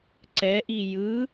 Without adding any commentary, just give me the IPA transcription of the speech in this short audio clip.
ǀ ɛ ʔ i j ɯ

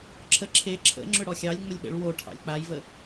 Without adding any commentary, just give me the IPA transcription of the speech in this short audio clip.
ǁʰ ə ǁʰ e ǁʰ ə̰ ŋ͡ǁ ʏ ɽ ɔ xʲ ɑ lʲ ŋ͡m ə lʲ ɓ ə̰ ɭ w o ʈʰ ɑ̰ lʲ k͡p a j v ə

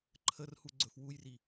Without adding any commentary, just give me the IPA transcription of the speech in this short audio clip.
ǃʰ ə r h u ɡ͡ǀ ɵ f w u j r i

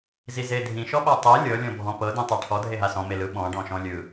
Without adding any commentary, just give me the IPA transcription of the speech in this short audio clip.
z i z e dʱ ĩ ʃ ɔ ɓ a tˤ e lʲ ɤ lʲ ɔ̃ bʱ ɔ̃ p ɤ d ĩ tˤ a ʈʰ ɔ dʱ e ɦ a s ɔ̃ m e l ɯ ɓ ɔ̃ ɖ ɔ̃ ʃ ɔ̃ lʲ ɯ

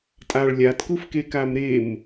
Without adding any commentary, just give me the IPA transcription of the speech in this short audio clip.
tʼ a ɭ lʲ a t k u f k e k a m ɾ e m

